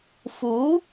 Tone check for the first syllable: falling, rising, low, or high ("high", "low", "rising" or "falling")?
rising